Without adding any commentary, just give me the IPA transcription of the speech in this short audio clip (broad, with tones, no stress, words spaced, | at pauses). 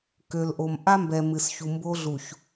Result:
kø˨lʔo˨mʔa˦mbɛ˨ mɨ˨sçu˨mbo˦ɮu˨ç